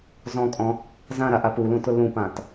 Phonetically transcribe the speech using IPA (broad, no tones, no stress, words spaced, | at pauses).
zɔ̃kʼɔ̃ | zãɾaʔa pulũtʊ lũpãt